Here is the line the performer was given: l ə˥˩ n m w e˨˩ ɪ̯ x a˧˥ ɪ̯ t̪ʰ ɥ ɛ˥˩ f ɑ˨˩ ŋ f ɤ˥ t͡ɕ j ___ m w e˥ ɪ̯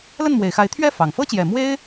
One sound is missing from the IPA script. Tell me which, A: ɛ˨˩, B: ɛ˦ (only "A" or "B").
A